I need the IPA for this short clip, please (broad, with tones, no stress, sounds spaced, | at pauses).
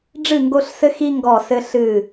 ɖ͡ʐ ɨ˦˨ ŋ ɡ o˦ ɬ s ɘ˦ x i˦ ŋ ɡ ɔ˦˨ s ɘ˦ ɬ ɨ˦˨